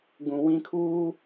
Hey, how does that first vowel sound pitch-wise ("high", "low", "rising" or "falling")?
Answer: low